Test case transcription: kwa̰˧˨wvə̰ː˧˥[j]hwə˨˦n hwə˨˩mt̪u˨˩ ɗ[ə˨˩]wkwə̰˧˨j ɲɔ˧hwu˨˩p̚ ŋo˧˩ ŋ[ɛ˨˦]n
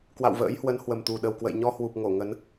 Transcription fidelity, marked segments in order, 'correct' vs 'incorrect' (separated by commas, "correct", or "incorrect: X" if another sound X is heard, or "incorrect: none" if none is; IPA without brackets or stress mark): correct, correct, incorrect: ə˨˦